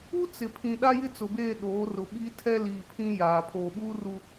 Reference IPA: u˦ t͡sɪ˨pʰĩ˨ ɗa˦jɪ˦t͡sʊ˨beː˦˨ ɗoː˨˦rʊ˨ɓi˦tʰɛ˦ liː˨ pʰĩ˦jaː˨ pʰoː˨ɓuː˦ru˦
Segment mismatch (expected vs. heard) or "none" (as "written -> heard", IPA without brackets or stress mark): none